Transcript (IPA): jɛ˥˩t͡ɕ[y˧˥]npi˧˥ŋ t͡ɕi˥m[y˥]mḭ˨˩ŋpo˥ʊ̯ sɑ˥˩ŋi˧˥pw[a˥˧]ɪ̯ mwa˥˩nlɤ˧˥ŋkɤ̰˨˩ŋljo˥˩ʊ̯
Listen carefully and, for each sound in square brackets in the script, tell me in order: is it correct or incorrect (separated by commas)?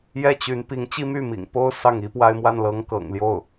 correct, incorrect, correct